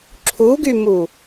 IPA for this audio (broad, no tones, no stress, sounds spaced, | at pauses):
ǁʰ u ɡ y m u